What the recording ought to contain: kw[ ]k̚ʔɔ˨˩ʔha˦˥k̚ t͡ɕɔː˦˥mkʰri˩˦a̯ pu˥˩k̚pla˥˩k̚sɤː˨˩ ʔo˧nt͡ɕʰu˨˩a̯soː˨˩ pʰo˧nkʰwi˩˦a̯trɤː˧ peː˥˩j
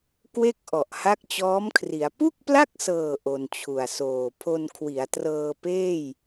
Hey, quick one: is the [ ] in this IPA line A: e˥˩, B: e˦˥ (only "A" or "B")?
A